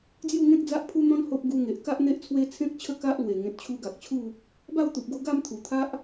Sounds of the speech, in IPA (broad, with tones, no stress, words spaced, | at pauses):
d͡zju˥˧ŋẽ˦k̚d͡za˦ʔ pʰu˦n̪ɔ̃˦n ho˦p̚ ɡu˧ŋe˨ʔka˦ʔ n̪e˦ʔt͡sʰwe˦ t͡sʰẽ˦k̚t͡ɕʰə˥˧ ka˦ʔlwe˨˩ ŋẽ˨t̚t͡ɕʰu˧ɡa˨k̚t͡ɕʰu˥˧ | ba˥˧wt̪u˨p̚ɡo˧ ɡa˥˧mt̪ʰu˨˩t̪ʰa˦ʔ